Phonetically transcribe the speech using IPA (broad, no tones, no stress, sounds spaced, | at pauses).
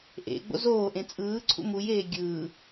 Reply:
ʔ ḛ ɡ͡b o̰ z oː ʔ ẽ t͡sʼ ɯː ǀʰ ṵ m u j eː ɡʲ ɯː